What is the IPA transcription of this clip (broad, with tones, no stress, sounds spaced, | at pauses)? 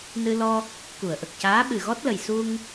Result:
n ɨ˧ l ɔ˧ | k u˨˩˨ ə̯ ʔ ə˨˩ k̚ c aː˧˥ ɓ ɨ˨˩ ɣ ɔ˦˥ t̚ l ə˨˩ j s u˧ ŋ